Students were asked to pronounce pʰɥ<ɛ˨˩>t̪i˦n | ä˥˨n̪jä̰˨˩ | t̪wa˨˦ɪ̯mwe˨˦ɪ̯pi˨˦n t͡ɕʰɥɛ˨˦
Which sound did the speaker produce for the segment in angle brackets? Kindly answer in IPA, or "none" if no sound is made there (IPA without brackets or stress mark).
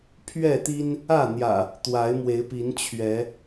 ɛ˥˨